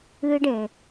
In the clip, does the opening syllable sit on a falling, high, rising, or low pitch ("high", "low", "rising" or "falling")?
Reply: high